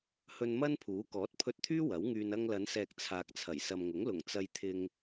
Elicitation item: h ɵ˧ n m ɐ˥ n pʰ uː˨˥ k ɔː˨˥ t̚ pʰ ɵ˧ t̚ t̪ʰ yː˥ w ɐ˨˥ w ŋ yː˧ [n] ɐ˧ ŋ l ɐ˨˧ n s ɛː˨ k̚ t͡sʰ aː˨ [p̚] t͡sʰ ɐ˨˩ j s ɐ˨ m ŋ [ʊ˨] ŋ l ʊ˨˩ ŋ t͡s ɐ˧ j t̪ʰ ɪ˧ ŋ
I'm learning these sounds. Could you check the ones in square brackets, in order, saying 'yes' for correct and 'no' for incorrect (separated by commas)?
yes, no, no